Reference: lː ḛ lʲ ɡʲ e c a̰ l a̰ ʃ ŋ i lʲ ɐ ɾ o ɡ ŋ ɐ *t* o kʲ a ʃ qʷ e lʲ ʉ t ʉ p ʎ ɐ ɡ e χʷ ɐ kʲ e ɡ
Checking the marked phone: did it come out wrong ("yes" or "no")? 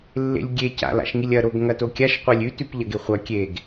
no